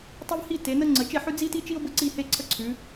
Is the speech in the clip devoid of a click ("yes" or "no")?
no